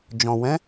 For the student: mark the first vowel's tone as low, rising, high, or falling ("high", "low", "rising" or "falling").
low